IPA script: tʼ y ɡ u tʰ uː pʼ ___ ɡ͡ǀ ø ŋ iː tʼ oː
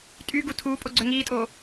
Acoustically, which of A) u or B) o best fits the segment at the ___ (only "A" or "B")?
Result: B